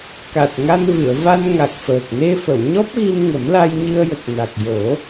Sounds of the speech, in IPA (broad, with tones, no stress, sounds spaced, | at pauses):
k a˨˩ t̚ ŋ a˧ n v ɨ˨˩˨ ə̯ v a˧ n ŋ a˨˩ k̚ f əː˨˩ k̚ n e˧ f ə˨˩˨ w ɲ ɔ˦˥ p̚ ɣ i˧ m ŋ ə˨˩˦ m l a˧ j ɲ ɨ˧ ə̯ j ə˨˩ k̚ n a˨˩ k̚ j o˨˩˦